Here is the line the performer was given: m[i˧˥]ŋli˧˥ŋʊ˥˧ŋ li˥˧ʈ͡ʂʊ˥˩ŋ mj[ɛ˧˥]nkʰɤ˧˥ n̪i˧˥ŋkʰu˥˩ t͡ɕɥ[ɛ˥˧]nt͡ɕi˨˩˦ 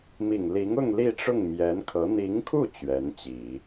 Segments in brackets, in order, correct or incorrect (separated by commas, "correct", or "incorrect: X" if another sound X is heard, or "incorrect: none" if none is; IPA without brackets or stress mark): incorrect: i˨˩, correct, incorrect: ɛ˧˥